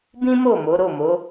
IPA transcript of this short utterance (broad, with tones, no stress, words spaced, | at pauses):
bĩ˦mo˦˨ mo˨˦ɾo˦˨mo˨˦